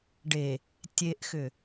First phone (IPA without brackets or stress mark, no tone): ɖ